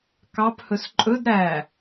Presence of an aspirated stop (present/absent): absent